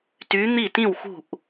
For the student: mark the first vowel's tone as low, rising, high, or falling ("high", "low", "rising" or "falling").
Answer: rising